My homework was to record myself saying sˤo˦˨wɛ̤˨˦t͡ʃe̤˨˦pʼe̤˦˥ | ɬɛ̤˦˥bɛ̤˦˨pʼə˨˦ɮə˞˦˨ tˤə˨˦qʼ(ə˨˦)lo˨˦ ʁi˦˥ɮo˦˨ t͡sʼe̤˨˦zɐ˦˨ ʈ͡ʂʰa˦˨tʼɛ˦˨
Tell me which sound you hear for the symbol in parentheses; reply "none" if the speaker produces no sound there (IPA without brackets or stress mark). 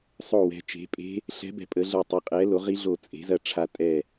ɛ˨˦